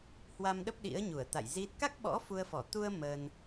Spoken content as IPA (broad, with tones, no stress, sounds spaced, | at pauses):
h w a˧ m ɗ ə˦˥ p̚ ɗ ḭ˧˥ ə̯ ɲ u˧˩ ə̯ t̪ a̰˧˨ j z i˦˥ t̚ k a˦˥ k̚ ɓ ɔ̰˧˥ f u˧ ə̯ f ɔ˧˩ t̪ u˧ ə̯ m ə˧ n